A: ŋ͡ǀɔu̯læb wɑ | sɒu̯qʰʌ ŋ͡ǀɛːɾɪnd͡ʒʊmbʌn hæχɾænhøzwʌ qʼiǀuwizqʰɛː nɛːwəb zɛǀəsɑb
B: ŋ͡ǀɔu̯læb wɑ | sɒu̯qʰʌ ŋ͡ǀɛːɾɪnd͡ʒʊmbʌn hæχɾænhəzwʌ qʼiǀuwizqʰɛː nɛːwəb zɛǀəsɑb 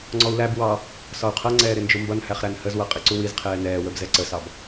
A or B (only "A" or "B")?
B